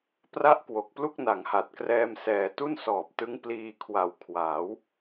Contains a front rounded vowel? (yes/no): no